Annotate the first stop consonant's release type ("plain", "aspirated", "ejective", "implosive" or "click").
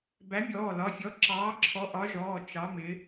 plain